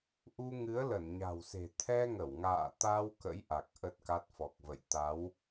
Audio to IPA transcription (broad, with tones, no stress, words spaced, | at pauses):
ʔu˧ ŋɨ˨˦ə̯lə˧˩nɲa̤˨˩wse̤˨˩ t̪ʰɛ˧ŋə˧˩w ŋa̰ː˧˨t̪a˧w kə̰˧˥jʔa˨˩k̚ ʔə˦˥t̚ka˦˥t̚ fɔ˨˩k̚və̰˧˨j t̪a˨˦w